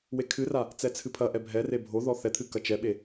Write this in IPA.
wekʰɨra | t͡sɛt͡sʰɨpʰɐʔɛ bʱɛre bʱo ðɔθɛt̪ʰɨ kɐt͡ʃɛɓe

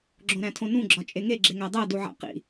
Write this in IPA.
ɡ͡ǁõɾæ̃tʰõnũ ɡ͡ǁɒt͡ʃʼeŋe ɡ͡ǁeŋædˤæ duʕæ̰qḭ

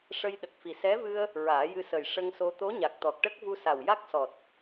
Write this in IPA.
ʂə˧jɗə˨˩k̚fi˨˩ sɛ˧˥vɨ˧ə̯ | ɹaː˨˩˦jɨ˧sə˨˩j ʂə˧ŋso˧ t̪o˧˥ɲa˨˩k̚t̪ɔ˨˩k̚ʈə˦˥k̚ vu˧sa˨˩w ja˦˥k̚sɔ˨˩t̚

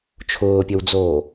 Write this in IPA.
t͡ʃʰʊːpʲəwd͡zoː

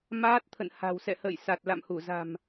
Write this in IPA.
maː˦˥t̚t̪ʰə̰˧˨n ha̤˨˩wsɛ̰˧˨hə̰ː˧˨j sa˨˩t̚la̰˧˨mhu˧˩za̤˨˩m

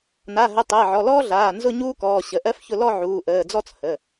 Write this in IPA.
na˩˧˩ɦə˩˧˩ tˤəː˩˧˩ʕɔ˩˧˩lɔː˥ɮaː˩˧˩ nzʊ˦˨ ɲuː˥kɔː˩˧˩ ɕə˩˧˩ʔɜ˥fçʊ˦˨ lɔ˦˨ ʕuː˩˧˩ʔəː˩˧˩d͡zɔ˥t͡s hə˩˧˩

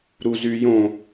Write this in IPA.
ɾuzyjõ

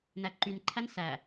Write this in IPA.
næǃynǃʰæn sæ

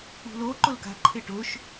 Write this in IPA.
ṳlo ǃʊlka̤ ǃʰɪʈʊʃ

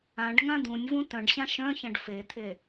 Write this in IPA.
ãɖ ŋãd̪ũnʲvũ tœ̃ɖɕã ʃœ̃çɐ̃ɖ fet̪ʰe

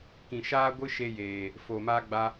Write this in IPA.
kĩ˨ʃaː˦ɡʷɨ˦ ʃe˦jeː˨ | foː˨maː˦ ɡ͡ba˦

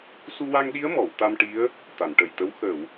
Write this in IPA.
su˧wa˧ŋɗi˧˥ə̯ mɔ˨˩˨w t̪a˧mʈi˧˥ə̯ | t̪a˨˩˨nʈə˨˩jt̪ə˧˥w xə˨˩˨w

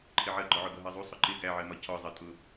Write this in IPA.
ǃʰɪʕɜɡ͡ǃɒʕʊ ɡʌɦɜzˤu sˤʊǃɪ ɡæʕɜmɒ cʰɒ zˤɜtʼʊ

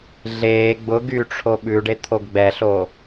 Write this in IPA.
ɮeː ɡ͡bʊ ɡyʈ͡ʂʰo ɓʉɖet̪ʰoɡ ɡ͡bɛɬoː

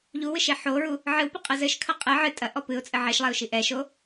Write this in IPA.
ʎuwɨʃe ħoɹu | ʕɨwpɨqʼɨ zɘʃkʰɐ qʼɨ ʕɨ tʼɐʔɔ pɨʊ̯t͡sʼɘ ʕeʃlˠɛʊ̯ʃi ʔɛʃo

